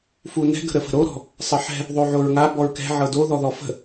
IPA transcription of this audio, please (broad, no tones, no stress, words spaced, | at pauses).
funɛ̤ ɡə̤ɾəfə̤ɾo ɾɔ̤ | sˤɤħɛ̤ | ðˤoʕoɹŋa bɔɹkɛ̤ ʕɤdo ðɔðɔfə̤